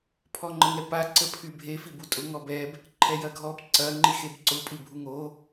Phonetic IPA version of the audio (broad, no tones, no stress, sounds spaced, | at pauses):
pʰ ɔ ŋ͡ǃ ə ŋ ɛ p a ǀ ə pʰ y bʱ e f i b u tʼ ʊ ŋ ɔ b ɛ b | ǃʰ ɛ j ɐ ɡʱ ɔ b ǀ ɐ ŋ͡ǃ i x e b ǀ ʊ pʼ i bʱ u ŋ o